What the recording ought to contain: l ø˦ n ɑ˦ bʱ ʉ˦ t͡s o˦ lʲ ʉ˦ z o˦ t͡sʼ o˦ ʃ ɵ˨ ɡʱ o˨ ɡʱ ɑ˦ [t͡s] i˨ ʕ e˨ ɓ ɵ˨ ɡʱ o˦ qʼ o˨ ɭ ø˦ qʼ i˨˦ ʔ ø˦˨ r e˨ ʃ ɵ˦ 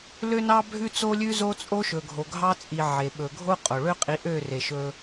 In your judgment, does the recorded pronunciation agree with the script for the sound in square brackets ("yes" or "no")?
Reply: no